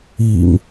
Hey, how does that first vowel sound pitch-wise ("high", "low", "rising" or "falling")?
low